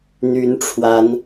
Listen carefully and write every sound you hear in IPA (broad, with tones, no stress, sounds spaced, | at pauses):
n̪ y˨˦ n ʈ͡ʂʰ w a˨˦ n